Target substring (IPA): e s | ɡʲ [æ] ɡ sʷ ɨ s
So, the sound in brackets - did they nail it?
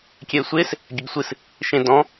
no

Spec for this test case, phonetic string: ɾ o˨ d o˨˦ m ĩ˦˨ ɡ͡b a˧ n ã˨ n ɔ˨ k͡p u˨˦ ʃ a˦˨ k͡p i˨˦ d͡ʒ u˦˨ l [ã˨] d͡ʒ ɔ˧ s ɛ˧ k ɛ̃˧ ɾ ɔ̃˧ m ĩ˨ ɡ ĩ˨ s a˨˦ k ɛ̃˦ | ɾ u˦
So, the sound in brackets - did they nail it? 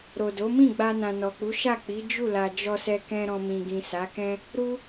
no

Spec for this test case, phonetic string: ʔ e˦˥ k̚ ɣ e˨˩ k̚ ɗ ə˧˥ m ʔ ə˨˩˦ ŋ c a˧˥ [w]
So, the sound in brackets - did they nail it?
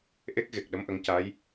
no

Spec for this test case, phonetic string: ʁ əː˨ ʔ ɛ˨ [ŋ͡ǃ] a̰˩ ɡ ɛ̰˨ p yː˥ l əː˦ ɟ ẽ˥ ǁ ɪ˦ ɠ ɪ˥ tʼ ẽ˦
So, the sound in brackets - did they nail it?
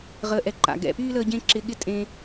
no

